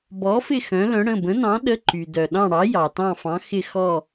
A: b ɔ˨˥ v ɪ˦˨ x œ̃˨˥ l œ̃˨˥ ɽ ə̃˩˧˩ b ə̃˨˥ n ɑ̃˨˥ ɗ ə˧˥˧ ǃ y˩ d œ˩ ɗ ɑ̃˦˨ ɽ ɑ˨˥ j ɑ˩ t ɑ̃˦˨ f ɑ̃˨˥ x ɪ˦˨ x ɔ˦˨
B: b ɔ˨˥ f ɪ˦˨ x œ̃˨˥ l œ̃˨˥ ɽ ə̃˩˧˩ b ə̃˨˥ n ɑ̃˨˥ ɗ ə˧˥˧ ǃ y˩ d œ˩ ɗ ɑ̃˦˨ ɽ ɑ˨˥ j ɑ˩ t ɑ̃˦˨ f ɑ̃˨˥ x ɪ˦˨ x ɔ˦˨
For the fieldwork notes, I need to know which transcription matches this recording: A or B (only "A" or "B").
B